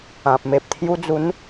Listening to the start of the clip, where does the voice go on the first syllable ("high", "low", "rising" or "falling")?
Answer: low